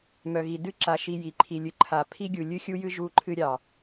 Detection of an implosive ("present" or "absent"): absent